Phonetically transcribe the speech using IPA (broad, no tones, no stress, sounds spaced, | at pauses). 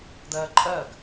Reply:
d̪ ɜː ǃʼ ɜ ɡ